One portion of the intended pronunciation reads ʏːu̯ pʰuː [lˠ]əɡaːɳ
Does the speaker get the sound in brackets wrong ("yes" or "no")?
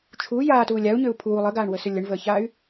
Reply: no